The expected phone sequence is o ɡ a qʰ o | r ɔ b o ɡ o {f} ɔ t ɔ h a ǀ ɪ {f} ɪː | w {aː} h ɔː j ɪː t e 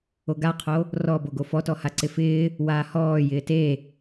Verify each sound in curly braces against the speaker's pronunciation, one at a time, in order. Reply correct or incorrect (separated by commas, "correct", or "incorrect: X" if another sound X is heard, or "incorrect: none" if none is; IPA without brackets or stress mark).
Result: correct, correct, correct